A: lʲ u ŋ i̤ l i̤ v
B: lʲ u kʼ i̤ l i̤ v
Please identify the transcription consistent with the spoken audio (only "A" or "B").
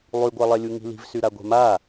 A